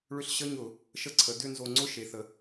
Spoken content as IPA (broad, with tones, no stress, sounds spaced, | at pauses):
ɭ ʏ˧ ɬ ɕ ə˧˥˧ ɲ ʊ˧˩˧ | ʃ ə˧ ǀʰ ə˩˧ d ʏ˥˨ n z o˧ ŋ͡ǀ ʊ˧˥˧ ʃ e˩˧ θ ə˩˧